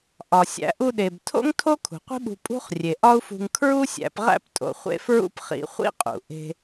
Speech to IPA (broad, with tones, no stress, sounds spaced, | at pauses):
ʔ ɒ˩ sʲ æ̰˧ ʔ u˧ ɗ e˩ b tʰ o̰˥ ŋ tʰ o˥ kʰ ṳ˩ qʷ i̤˥ ɓ ṳ˧ pʼ ṳ˥ χ rʲ e˩ ʔ ɒ˥ u̯ f ṳ˧ ŋ kʰ ɹ u˥ sʲ æ̰˧ p ʁ æ̰˥ p tʼ o̰˧ χʷ ḛ˥ f ɹ ṵ˥ p χ ḭ˧ χʷ ḭ˥ qʼ ṵ˩ ʔ e̤˧